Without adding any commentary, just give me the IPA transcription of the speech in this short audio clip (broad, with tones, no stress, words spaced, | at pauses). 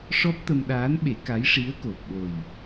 ʂɔ˦˥p̚t̪ə˧mɗaː˧˥nɓe˨˩˦ ka˧˥jʂi˧˥ə̯ko˨˩p̚ɓo˨˩j